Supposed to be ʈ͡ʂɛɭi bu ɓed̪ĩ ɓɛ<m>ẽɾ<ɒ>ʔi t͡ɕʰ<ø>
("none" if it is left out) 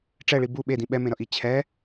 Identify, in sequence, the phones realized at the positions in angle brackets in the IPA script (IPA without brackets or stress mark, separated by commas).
m, ʌ, ɛ